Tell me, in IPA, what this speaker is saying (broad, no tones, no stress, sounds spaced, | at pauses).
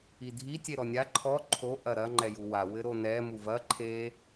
i dʱ i tʲ e ɾ ɔ nʲ a ǃʰ ɔ ǃʰ o ʔ ɐ ɾ ɐ ŋ͡ǃ ɛ j u w a w ɘ ɾ o n ɛ m u v ɐ ǃʰ e